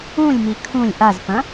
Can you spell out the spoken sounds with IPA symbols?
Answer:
ũlʲmi kʰũlʲ ʔazpɐ̃

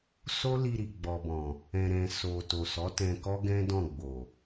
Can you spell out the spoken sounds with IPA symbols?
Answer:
so˦li˧ɾi˨ ɡ͡bɔ˨bɔ̃˨ | ɛ̃˨ɾɛ̃˨ so˨ to˨sɔ˨˦tɛ̃˧ kɔ˦ɡɛ̃˦ dɔ̃˦˨ ɡ͡bo˨

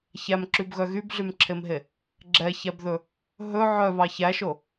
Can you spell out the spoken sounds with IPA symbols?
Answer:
çæmǁybɣœ ɣybɮymǁʰemɦe | ɡ͡ǁɛçæbðɵ | ɦɵ ʕœβɑ çæʃo

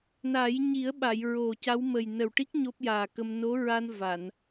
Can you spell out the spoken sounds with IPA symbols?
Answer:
na˨˩˦j ɲi˨˩˦ə̯ɓa˨˩˨j ɹo˨˩ ca˧˥wmə˨˩j nə˨˩wʈi˦˥k̚ ɲo˦˥p̚jaː˨˩kə˧m no˧˥ɹa˧n va˨˩˨n

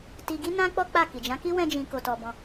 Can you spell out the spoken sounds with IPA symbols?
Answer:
ti˧ ɡi˦nã˦k͡pɔ˦ k͡pa˦˨ki˨ d͡ʒã˨˦ki˦ wɛ̃˦d͡ʒĩ˧ ko˧tɔ˧bɔ̃˧

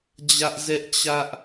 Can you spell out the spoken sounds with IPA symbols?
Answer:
d͡ʑä˦ʔ zɛ˦ʔt͡ɕä˦ʔ

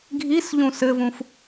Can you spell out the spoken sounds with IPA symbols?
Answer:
ɡʱisʎũ sɘvũf

